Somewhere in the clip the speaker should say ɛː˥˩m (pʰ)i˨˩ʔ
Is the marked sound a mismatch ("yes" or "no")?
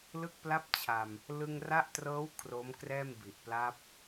yes